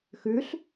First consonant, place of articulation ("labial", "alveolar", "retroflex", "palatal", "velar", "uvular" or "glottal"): velar